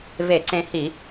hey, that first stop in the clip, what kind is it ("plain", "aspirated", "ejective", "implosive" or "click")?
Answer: click